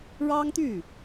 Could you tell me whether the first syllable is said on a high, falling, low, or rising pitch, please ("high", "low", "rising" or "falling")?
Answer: high